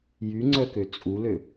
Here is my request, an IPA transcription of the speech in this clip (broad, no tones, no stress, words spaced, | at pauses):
jyŋ͡ǀœkø t͡sʼulø